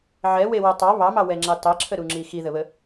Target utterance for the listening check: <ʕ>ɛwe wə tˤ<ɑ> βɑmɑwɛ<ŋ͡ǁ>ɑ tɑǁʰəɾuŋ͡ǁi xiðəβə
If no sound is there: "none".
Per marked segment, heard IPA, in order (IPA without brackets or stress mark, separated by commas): ʕ, ɑ, ŋ͡ǁ